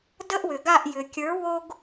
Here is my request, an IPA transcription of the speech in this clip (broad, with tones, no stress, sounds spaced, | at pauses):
d ə˦ ʔ w ʏ˩ ɡ a˦˨ ʔ j ʏ˩ kʲ ə˞˨˥ w o˦ ɡ